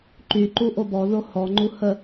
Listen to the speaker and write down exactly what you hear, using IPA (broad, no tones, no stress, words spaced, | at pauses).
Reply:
ǃyǃu ʔobɔðo hɔŋ͡ǃu hə